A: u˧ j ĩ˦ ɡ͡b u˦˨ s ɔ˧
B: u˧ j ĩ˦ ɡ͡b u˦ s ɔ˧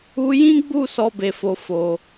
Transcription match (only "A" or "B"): A